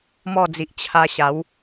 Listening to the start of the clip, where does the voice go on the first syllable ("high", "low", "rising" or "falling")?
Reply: falling